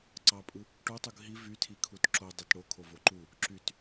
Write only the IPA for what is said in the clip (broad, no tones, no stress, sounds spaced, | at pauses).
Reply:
ǀ ɑ pʼ ɯ | ʈ o tˤ u ɡ ɦ i v y tʰ i kʰ u t ǁ o dˤ e t ɽ o kʰ o v o ǃ u | ǁ y t